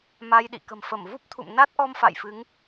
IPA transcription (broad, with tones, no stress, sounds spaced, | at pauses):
m a˧ j ɗ ḭ˧˨ k ə̤˨˩ m f ə˧˩ m v u˦˥ p̚ t̪ʰ ṵ˧˨ m n a˦˥ t̚ ʔ ɔ˧ m f a̰˧˨ j f ɨ˨˦ ŋ